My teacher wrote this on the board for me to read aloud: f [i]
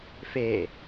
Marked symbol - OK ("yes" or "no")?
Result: no